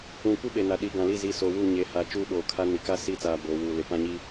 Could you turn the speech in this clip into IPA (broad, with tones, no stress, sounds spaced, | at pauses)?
ũ˨ kʷ i˦ ɓ e˨ n a˨ ɗ iː˨ ɡ ã˨ l i˦˨ z i˨˦ s oː˨ w u˦˨ ɲ eː˨ h aː˨ t͡ʃ uː˦ ɓ oː˨ kʰ a˦ n i˦ k aː˦ s i˦˨ t͡s aː˨ b oː˨ w uː˨ l ɪ˨ p ã˦ ɲ i˦